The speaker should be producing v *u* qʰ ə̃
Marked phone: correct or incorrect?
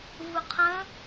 correct